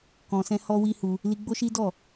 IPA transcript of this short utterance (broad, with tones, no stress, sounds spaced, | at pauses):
k ɔ̃˧ s ɛ̃˦ h ɔ˦ w i˦ h u˧ | l i˧ ɡ͡b o˦ ʃ i˦ d ɔ˦˨